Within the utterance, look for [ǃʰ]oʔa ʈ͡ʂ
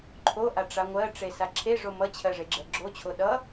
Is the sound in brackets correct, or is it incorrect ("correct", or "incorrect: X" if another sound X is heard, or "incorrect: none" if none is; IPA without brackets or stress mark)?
correct